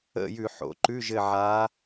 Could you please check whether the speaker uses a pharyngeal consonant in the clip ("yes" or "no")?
yes